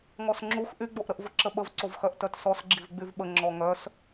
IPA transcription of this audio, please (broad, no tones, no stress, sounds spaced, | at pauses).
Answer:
ŋ ɔ s ŋ͡ǁ u x ʔ y ɡ͡b o ʔ ɾ ə ʔ v ə ǁ ə ɓ ə v ǀ o v x œ ʔ t œ t s ɔ s ɡ͡ǁ i v ɡ͡b y v ɓ ə ŋ͡ǁ ɔ ŋ œ s